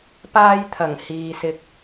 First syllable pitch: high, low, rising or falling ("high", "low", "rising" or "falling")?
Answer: high